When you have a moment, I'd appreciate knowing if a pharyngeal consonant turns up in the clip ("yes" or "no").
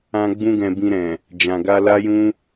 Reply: no